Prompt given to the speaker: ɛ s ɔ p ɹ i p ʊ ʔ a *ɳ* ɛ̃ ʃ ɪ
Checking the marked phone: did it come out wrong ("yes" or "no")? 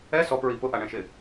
no